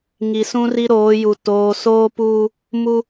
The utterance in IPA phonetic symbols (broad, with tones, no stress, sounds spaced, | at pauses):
ŋ i˨ s ũ˦ r i˦ ɾ oː˨˦ j u˨ t oː˨ s oː˦ p uː˦ | m u˦